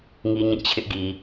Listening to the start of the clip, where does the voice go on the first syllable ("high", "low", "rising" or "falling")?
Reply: high